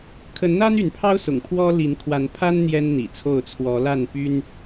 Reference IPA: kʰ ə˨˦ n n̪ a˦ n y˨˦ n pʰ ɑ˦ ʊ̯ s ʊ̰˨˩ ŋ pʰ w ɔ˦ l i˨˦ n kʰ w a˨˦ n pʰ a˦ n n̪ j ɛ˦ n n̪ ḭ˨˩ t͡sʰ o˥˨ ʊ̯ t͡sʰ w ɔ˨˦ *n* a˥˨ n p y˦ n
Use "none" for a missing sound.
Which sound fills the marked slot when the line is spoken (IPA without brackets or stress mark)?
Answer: l